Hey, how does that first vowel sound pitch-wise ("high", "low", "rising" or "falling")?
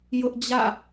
high